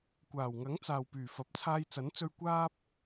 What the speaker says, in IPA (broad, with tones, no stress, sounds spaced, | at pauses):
kʷ aː˨˩ w ŋ ɐ˨˥ ŋ t͡s aː˨ w p yː˨˩ f ɐ˨ p̚ t͡sʰ aː˧ j t͡s ɐ˨˥ n t͡s ɵ˧ ɥ kʷ aː˥ p̚